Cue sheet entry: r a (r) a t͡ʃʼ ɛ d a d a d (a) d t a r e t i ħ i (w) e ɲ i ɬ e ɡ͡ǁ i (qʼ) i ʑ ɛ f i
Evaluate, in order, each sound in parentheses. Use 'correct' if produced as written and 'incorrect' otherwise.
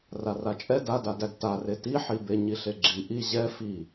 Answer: correct, incorrect: æ, incorrect: b, incorrect: ʔ

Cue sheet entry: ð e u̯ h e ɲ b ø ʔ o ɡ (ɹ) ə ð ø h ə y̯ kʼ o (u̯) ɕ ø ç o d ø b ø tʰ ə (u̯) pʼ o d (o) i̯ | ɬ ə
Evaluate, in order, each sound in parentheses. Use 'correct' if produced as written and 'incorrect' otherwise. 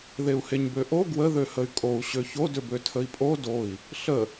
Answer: incorrect: w, correct, incorrect: i̯, correct

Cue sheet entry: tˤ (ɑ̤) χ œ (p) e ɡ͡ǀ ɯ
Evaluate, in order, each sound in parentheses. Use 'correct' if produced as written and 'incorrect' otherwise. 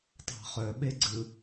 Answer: correct, incorrect: ɓ

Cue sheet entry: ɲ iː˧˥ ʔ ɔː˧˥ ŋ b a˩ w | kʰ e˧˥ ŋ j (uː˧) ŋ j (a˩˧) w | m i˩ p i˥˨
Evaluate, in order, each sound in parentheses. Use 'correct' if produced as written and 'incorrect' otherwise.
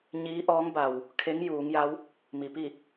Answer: incorrect: uː˩˧, incorrect: a˧˥

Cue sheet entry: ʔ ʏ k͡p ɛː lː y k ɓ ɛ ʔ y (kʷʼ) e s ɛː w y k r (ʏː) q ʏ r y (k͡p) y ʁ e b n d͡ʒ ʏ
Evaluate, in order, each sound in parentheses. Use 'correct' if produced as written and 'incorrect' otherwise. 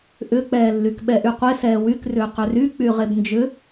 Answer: incorrect: qʷ, correct, correct

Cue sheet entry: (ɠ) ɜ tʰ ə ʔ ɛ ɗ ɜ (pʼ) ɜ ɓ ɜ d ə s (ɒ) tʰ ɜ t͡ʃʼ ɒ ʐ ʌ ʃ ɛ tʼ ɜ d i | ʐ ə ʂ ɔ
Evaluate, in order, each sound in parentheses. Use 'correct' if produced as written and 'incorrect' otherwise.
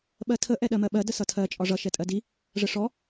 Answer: incorrect: ɓ, incorrect: m, incorrect: ʌ

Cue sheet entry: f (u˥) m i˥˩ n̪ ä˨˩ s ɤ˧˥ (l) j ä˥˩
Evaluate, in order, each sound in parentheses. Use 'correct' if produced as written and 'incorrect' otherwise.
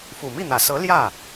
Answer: incorrect: u˨˩, correct

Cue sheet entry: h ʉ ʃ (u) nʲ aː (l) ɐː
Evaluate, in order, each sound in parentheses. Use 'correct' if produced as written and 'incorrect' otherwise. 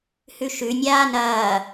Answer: incorrect: ʉ, incorrect: n

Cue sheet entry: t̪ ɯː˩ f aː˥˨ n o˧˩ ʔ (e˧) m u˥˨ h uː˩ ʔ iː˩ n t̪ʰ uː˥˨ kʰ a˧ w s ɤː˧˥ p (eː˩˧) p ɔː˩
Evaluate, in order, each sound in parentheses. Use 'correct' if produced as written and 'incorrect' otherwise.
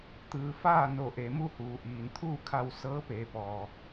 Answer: incorrect: e˩˧, correct

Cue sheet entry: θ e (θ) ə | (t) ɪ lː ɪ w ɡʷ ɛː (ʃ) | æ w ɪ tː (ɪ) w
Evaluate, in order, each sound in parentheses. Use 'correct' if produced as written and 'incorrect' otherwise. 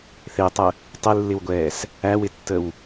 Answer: incorrect: tˤ, incorrect: tˤ, incorrect: s, incorrect: ə

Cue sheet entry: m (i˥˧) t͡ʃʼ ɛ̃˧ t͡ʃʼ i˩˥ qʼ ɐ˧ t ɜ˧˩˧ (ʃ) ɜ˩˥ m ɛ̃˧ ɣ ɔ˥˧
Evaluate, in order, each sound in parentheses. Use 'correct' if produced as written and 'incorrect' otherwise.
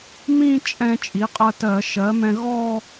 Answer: incorrect: ĩ˥˧, correct

